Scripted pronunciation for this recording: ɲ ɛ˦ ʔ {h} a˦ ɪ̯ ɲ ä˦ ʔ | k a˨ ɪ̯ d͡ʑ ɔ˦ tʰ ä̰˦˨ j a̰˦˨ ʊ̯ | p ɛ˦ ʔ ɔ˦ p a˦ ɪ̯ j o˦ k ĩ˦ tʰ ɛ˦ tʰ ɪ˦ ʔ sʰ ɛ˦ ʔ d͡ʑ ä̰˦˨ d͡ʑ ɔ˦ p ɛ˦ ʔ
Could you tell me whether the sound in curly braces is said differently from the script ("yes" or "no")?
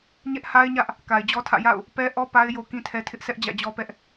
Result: no